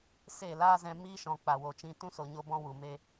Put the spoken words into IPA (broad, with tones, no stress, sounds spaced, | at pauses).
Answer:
s e˦˨ l aː˦ z ɛ̃˧ m iː˦ ʃ ɔ̃˨ k͡p a˨ w o˨ t͡ʃ ĩ˧ t ũ˦ s o˨ ɲ o˧ b ɔ̃˧ w u˨ m e˧